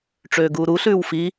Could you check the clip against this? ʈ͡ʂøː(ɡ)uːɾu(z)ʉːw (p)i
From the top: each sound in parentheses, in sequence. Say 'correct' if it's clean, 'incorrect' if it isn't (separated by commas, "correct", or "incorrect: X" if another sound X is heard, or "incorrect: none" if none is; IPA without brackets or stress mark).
correct, incorrect: ɬ, incorrect: f